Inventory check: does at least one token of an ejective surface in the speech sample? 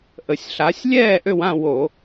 no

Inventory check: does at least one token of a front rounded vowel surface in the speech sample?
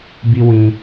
no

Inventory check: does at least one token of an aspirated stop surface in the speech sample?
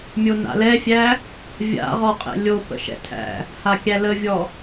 yes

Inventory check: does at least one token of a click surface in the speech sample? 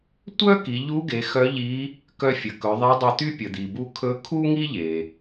no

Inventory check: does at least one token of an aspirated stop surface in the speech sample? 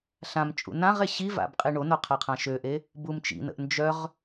yes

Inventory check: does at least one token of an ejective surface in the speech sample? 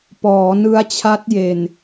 no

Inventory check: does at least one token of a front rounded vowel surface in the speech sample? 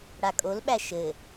no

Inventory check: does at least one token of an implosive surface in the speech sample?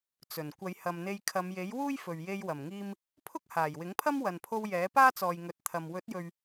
no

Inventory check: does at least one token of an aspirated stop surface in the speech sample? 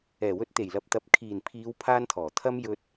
yes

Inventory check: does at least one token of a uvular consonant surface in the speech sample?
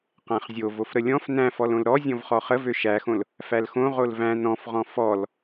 yes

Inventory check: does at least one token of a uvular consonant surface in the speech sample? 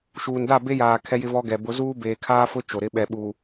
no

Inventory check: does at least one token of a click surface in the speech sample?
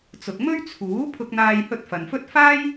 no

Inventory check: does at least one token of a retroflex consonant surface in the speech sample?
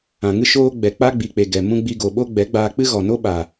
no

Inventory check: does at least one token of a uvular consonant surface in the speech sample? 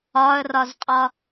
yes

